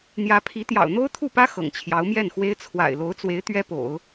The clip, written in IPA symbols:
n̪ j ä˧˥ pʰ i˧˥ t̪ j ɑ̰˨˩ ʊ̯ n̪ o˥ ʊ̯ t̪ʰ u˥˩ p ä˥ x ɤ̰˨˩ ŋ t͡ɕʰ j ɑ˧˥ ʊ̯ m j ɛ˥˩ n x w e˥ ɪ̯ t͡sʰ w a̰˨˩ ɪ̯ l o˧˥ ʊ̯ t͡s w e˧˥ ɪ̯ t̪ ɥ ɛ˥ p o̰˨˩˦ ʊ̯

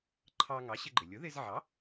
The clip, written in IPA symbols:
ǃʰ ɑ˧ ŋ ɑ˩˥ ɕ ɪ˧ ɡ͡ǃ ɪ˩ lʲ ʊ˩˥ ð ɪ˧ z ʕ ɑ˩˥

